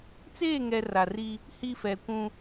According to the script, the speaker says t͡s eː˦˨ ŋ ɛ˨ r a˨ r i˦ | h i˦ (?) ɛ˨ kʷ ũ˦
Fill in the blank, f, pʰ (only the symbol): f